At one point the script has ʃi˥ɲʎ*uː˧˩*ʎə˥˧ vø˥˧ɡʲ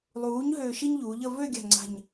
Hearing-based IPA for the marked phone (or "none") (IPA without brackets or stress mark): uː˩˧